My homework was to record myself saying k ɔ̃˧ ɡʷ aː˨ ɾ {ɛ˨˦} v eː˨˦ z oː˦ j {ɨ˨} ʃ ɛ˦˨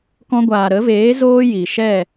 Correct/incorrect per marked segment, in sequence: incorrect: ə˨˦, incorrect: i˨

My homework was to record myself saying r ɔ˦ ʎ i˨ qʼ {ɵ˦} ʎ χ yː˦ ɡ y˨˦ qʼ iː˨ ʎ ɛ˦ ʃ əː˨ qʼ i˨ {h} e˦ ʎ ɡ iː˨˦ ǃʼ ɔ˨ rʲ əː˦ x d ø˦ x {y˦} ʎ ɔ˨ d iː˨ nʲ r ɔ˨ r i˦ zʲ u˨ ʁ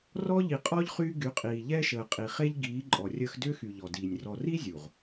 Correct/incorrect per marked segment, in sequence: incorrect: ɔ˦, incorrect: χ, incorrect: y˨

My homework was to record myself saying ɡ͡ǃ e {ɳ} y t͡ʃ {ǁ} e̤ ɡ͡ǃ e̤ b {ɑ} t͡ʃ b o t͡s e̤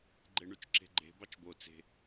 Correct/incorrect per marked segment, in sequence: correct, correct, correct

